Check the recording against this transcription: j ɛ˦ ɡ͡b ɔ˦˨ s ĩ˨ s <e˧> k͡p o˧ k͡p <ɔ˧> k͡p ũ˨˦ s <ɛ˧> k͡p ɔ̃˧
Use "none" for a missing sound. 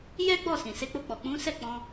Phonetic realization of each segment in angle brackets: e˧, ɔ˨, ɛ˦˨

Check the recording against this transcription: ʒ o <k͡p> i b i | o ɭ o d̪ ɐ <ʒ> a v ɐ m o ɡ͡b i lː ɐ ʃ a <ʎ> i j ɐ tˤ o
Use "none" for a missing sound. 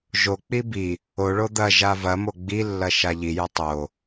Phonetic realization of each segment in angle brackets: k͡p, ʒ, ʎ

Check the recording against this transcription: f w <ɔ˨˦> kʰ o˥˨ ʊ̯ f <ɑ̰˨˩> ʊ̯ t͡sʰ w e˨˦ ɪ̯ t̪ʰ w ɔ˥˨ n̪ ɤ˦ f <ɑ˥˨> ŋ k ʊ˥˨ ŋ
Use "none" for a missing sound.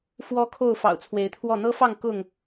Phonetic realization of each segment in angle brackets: ɔ˦, ɑ̰˨˩, ɑ˥˨

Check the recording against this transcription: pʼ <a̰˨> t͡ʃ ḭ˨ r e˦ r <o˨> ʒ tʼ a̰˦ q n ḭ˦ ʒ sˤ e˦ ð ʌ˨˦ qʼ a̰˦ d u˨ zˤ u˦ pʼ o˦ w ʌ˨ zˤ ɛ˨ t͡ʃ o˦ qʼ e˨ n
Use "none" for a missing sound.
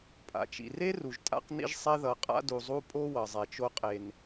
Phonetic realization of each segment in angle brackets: a̰˨, u˨

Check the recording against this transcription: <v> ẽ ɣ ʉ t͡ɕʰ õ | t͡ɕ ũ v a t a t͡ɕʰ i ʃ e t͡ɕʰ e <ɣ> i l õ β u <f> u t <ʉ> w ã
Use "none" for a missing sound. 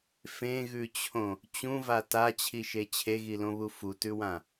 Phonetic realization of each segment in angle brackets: f, ɣ, f, ʉ

